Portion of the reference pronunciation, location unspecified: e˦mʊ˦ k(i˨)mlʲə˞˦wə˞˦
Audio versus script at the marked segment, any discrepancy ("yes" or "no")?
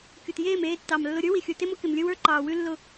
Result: yes